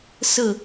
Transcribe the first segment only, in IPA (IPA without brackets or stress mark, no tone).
s